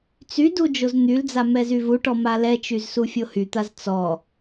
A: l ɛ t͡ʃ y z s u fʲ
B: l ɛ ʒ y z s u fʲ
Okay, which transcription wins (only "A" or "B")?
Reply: A